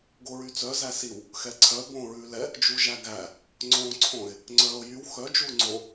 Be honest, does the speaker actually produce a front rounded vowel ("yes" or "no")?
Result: yes